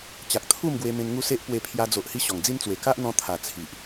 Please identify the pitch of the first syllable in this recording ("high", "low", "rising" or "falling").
low